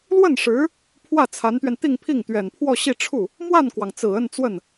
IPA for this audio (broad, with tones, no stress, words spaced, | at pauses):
lwə˥˩nʂɻ̩˧˥ | pʰwä˥˩t͡sʰa˧˥nt̪ɥɛ˧n t̪i˥˧ŋpʰi˥˩ŋ t̪ɥɛ˨˩npʰwɔ˥˧ɕi˥˧ ʈ͡ʂʰu˥˩ | mwa˥˩nkwɑ˩ŋ t͡sɹ̩˨˩ə˥˧n t͡swə˥˩n